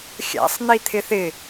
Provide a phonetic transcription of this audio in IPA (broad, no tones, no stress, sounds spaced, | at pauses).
xʲ æ̰ sˤ n̪ i t̪ʰ ɪ θ ɪ